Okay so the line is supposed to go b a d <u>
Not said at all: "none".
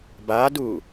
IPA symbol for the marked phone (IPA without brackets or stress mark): u